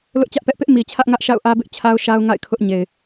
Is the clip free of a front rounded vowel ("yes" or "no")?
yes